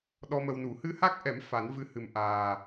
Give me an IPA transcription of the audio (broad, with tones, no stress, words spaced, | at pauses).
ɗɔ˧mə˧wnu˨˩˦ hɨ˧ha˦˥k̚ʔɛ˨˩˦m fa˨˩˦n vɨ˧hɨ˨˩m ʔaː˨˩